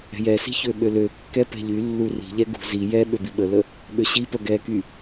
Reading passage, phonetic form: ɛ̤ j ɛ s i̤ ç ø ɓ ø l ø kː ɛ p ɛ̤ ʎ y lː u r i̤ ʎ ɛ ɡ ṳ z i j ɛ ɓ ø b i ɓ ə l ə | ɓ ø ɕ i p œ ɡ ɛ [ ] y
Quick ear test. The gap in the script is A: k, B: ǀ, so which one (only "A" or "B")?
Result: A